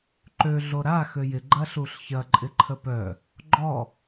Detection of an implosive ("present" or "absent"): absent